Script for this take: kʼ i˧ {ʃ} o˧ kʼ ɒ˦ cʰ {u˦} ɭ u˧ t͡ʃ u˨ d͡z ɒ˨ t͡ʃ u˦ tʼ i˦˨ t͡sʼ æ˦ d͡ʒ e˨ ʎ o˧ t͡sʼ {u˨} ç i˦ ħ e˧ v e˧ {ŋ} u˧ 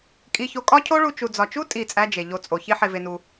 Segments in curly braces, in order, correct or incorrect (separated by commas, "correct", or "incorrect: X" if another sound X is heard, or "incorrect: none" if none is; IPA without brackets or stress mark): incorrect: ç, incorrect: o˦, incorrect: o˨, incorrect: n